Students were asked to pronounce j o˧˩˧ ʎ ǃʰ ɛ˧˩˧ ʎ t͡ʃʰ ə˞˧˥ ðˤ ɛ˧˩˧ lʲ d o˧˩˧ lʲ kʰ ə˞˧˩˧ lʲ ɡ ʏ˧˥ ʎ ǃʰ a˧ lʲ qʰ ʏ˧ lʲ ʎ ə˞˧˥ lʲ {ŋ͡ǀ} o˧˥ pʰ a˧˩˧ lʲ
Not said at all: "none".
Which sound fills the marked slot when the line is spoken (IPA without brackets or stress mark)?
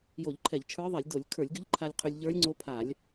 ŋ͡ǀ